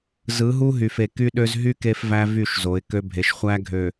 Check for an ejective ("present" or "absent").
absent